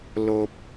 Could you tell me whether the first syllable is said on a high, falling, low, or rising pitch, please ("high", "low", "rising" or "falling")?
low